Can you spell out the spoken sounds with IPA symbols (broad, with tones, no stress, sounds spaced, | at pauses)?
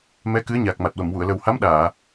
m ɛ˧˥ k ɨ˧˥ ə̯ ɲ a˨˩ k̚ m a˨˩ t̚ w ə˨˩˨ m w u˨˩˨ ə̯ l ə˨˩ w h a˧˥ m ɗ aː˨˩˨